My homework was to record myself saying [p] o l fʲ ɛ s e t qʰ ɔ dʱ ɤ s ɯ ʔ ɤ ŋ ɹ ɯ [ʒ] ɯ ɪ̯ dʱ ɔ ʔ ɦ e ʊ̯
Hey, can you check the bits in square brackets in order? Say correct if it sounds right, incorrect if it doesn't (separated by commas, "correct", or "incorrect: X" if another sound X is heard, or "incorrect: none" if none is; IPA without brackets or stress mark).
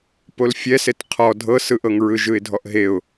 correct, correct